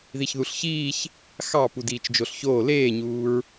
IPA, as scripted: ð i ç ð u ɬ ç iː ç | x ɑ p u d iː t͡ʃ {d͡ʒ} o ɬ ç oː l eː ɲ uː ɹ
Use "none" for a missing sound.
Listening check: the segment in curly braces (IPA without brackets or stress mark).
d͡ʒ